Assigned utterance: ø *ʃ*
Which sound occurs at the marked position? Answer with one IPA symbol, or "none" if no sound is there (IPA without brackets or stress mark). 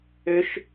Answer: ʃ